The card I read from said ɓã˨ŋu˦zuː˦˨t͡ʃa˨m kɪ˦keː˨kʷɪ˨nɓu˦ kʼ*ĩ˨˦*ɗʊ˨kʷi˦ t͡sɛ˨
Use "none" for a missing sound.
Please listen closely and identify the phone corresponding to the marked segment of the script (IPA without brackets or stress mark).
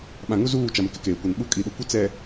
i˨˦